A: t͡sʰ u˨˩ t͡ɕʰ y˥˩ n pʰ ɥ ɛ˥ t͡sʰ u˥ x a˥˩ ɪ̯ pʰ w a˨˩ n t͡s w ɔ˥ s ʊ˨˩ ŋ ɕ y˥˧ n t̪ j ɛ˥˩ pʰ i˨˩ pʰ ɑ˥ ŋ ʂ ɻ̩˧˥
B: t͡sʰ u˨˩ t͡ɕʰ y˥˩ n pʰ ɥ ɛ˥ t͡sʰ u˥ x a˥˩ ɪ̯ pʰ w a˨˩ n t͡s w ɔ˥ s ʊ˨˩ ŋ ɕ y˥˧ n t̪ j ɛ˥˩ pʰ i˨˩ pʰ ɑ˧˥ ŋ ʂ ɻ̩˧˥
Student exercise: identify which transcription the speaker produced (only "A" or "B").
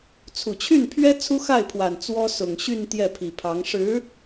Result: B